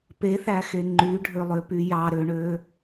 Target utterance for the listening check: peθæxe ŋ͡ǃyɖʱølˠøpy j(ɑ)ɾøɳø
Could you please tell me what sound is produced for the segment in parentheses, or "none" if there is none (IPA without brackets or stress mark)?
ɑ